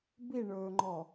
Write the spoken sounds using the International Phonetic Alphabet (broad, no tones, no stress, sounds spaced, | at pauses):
b i ɳ ɵː ŋ͡ǃ ɔ